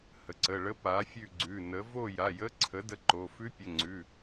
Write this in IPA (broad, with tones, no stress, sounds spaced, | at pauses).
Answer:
h ə˩ ǀ ə˩˧˩ ɭ ə˧˥ p a˩˥ fʲ ʉ˦˨ ɡ͡ǀ ʉ˩˧˩ n ə˩˥ v o˦˨ j a˩˧˩ j ə˧˥ ǀʰ ə˩˥ d ə˧˥ ǃ o˩˧˩ f ʉ˧˥ pʲ ə˩˧˩ ŋ͡ǀ ʉ˩˧˩